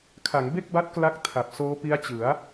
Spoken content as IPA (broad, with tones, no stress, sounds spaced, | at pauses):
kʰ a˩˦ ŋ b e˥˩ k̚ b a˦˥ t̚ k l a˥˩ k̚ tʰ a˨˩ p̚ s oː˦˥ p i˦˥ a̯ t͡ɕ ɯ˩˦ a̯